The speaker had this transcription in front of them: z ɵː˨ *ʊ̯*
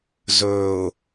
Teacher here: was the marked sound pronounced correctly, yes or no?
yes